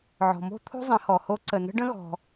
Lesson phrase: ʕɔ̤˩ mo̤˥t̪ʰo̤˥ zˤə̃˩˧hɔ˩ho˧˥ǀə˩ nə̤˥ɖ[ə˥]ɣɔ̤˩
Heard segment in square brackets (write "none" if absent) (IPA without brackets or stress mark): ə̃˥